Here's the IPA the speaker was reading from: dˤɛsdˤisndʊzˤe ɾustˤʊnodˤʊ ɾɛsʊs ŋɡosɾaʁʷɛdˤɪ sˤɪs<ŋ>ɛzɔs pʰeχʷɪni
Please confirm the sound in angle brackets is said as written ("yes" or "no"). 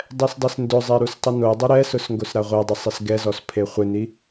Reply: no